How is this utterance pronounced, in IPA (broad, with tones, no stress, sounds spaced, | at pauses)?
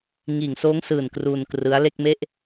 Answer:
ŋ iː˨˩ ŋ s oː˦˥ ŋ s ɯː˨˩ n k r uː˧ n k r ɯ˦˥ a̯ l e˥˩ k̚ m e˥˩ ʔ